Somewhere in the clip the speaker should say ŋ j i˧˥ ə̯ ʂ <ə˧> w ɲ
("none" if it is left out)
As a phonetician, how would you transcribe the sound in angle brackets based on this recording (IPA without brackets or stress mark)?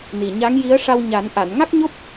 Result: a˧